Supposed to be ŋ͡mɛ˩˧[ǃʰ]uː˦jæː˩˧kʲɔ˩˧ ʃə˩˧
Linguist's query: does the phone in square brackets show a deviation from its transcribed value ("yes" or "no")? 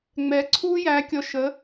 yes